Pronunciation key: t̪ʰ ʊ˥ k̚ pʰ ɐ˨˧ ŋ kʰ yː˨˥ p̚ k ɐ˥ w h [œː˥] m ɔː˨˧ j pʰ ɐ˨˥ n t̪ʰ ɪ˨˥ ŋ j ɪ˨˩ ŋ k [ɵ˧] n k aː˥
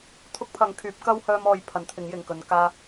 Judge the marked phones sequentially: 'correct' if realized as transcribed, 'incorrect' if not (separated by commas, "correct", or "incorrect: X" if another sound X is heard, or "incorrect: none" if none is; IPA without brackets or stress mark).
correct, incorrect: ɵ˨˧